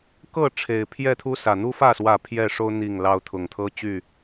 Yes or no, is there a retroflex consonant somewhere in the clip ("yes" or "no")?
yes